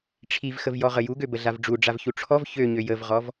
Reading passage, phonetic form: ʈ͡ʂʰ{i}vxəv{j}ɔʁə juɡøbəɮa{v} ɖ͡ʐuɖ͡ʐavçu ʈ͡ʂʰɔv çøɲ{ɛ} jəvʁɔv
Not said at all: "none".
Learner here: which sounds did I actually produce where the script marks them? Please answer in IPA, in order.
i, j, v, ø

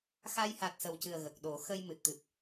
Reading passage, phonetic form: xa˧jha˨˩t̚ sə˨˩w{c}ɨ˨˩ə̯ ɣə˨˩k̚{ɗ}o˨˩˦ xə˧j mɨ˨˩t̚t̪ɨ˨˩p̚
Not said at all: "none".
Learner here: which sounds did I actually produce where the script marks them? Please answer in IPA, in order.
c, ɗ

